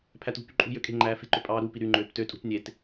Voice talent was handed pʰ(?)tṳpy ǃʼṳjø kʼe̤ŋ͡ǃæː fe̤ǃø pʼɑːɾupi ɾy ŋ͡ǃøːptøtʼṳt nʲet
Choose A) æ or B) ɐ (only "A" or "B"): A